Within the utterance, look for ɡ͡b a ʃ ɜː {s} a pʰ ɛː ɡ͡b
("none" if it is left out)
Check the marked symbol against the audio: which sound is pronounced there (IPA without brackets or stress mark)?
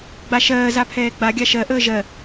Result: z